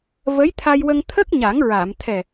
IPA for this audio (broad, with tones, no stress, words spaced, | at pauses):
və˧˥jt̪ʰa˧jwə˧ŋ t̪ʰə˦˥k̚ɲa˨˩˦ŋ ɹa˨˩˨m t̪ʰɛ˨˩